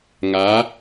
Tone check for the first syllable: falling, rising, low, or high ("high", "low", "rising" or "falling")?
rising